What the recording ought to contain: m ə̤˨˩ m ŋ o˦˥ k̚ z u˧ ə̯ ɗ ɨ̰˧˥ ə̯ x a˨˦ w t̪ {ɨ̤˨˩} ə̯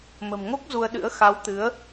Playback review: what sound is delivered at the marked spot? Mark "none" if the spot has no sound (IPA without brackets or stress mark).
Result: ɨ˨˦